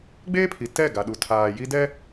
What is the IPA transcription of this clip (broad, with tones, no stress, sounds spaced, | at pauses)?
ɡ͡b eː˦ pʰ i˨ t ɛ˦˨ ɡ a˨ ɗ u˨ tʰ aː˨ j i˦ d ɛ˦